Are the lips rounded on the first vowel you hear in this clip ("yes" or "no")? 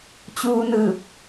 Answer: yes